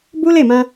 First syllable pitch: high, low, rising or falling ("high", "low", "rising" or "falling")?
high